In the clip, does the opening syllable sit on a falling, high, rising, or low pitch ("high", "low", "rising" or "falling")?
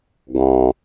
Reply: low